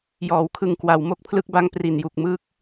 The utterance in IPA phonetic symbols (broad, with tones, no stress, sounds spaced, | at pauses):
j ɔː˩˦ w kʰ ɯ˨˩ ŋ k w a˩˦ w m o˦˥ k̚ pʰ l ɯ˦˥ k̚ b a˧ ŋ p r i˨˩ n j u˨˩ k̚ m ɯ˦˥ k̚